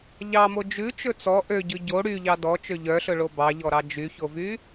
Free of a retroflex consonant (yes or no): no